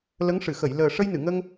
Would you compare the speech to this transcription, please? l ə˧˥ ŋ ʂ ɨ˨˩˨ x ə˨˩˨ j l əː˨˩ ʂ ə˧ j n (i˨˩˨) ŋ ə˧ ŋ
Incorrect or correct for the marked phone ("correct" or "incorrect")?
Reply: incorrect